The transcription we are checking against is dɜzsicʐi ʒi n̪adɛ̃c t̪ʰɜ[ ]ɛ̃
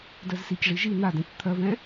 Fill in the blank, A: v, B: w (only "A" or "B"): A